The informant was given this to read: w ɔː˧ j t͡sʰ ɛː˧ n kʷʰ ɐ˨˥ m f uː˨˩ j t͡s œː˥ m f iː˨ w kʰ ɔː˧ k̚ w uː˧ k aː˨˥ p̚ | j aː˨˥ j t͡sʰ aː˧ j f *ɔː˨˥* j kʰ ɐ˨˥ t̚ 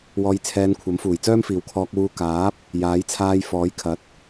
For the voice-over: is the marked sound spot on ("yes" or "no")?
yes